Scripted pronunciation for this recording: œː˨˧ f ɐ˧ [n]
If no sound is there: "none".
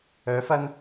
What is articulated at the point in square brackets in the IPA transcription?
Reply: n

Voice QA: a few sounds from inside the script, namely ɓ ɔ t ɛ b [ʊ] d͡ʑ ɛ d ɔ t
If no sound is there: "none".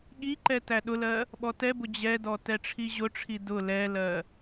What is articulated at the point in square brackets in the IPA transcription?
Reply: ʊ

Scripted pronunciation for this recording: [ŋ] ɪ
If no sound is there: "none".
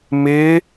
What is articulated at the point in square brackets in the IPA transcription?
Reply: m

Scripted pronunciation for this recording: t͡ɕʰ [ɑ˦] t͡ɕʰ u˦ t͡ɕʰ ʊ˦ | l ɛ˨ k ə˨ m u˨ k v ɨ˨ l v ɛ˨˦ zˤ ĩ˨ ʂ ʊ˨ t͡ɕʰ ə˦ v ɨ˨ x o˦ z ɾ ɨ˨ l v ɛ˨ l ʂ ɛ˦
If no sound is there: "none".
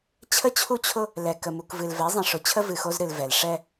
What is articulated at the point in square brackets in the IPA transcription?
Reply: ə˦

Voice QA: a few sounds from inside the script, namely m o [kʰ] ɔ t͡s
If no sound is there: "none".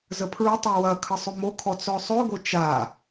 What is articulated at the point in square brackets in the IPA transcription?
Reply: kʰ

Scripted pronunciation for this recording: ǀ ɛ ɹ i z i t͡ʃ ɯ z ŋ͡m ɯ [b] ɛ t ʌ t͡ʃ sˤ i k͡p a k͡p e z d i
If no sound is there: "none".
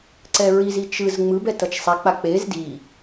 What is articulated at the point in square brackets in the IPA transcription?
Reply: b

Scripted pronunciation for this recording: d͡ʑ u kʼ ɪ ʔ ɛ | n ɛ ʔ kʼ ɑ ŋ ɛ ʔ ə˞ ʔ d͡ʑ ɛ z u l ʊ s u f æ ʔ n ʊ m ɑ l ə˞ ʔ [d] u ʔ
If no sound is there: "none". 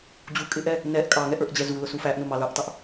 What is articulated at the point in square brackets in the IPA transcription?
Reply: tˤ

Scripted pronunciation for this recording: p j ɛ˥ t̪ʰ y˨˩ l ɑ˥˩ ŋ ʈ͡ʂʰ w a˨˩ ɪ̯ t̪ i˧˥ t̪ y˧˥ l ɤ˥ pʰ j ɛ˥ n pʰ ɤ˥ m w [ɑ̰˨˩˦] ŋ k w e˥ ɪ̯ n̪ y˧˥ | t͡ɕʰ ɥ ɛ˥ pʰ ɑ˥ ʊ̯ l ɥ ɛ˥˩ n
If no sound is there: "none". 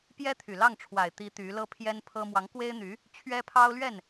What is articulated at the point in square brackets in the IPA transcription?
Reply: ɑ˧˥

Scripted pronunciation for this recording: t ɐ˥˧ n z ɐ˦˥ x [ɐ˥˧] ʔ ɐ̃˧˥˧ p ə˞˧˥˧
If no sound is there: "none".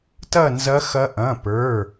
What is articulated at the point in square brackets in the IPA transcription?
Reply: ɐ˦˥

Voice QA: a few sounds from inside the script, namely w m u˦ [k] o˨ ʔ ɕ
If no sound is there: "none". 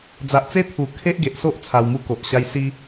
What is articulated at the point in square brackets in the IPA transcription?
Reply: k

